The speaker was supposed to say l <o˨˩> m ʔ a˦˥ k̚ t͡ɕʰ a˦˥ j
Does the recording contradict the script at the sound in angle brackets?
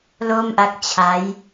yes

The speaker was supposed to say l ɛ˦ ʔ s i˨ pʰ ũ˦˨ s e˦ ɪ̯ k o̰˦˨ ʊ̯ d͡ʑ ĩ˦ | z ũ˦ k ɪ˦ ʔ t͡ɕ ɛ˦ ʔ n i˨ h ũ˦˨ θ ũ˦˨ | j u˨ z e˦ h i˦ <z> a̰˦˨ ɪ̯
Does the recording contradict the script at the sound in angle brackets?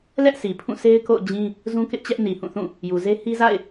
no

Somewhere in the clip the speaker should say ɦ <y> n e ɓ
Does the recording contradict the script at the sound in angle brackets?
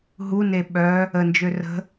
yes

